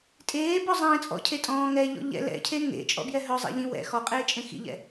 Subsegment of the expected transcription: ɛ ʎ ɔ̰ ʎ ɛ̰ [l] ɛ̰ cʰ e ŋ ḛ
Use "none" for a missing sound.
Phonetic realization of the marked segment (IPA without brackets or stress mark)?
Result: l